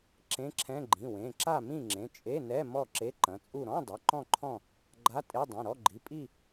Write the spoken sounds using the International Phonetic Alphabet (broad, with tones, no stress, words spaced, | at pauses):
ǁẽ˧˥˧ǁʰɛ̃˧˥˧ ɡ͡ǃĩ˩˧˩wẽ˩˧˩ ǁa˥˨mĩ˥˨ŋ͡ǁẽ˩˧˩ t͡ʃʼe˧˥˧nɛ˧˥˧ mɔ˥˨ǁe˧˥˧ǃɐ̃˩˧˩t͡sʼu˥˨ ɾɔ̃˧˥˧dˤɐ˩˧˩ ǃɔ̃˥˨ǃʰɔ̃˥˨ | ɡ͡ǃa˧˥˧tʼe˧˥˧ dˤẽ˩˧˩ɾɔ˧˥˧ɡ͡ǃi˩˧˩ pʼi˥˨